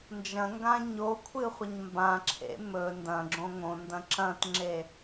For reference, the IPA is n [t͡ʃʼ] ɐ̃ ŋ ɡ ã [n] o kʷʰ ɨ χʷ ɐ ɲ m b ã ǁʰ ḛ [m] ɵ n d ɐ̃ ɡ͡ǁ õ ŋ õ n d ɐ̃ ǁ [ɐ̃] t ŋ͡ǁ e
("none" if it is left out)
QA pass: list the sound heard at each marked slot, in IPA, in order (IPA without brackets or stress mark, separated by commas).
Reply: d͡ʒ, ɲ, m, ɐ̃